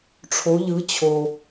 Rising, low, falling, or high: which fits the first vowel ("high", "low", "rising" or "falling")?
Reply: rising